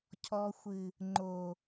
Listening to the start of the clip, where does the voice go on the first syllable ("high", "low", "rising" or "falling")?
low